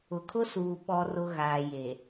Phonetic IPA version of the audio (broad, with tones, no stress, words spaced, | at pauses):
ʊ˨kʰʊ˦suː˨ ɓɔ˨rʊ˨ ɣaː˨je˨